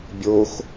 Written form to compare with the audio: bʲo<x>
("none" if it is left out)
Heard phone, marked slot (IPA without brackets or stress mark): x